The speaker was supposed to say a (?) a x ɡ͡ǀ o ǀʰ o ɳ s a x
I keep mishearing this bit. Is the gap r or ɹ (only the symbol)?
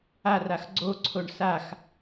r